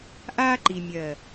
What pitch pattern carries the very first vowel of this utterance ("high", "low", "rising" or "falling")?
high